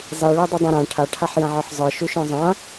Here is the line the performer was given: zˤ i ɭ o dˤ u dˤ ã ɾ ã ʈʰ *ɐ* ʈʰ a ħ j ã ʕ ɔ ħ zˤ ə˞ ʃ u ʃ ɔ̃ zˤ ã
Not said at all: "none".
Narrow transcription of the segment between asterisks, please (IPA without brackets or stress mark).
a